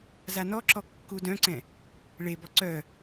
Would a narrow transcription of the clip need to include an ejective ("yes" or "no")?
no